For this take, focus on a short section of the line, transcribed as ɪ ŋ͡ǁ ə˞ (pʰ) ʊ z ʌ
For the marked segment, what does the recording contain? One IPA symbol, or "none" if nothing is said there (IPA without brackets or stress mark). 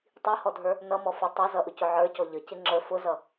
f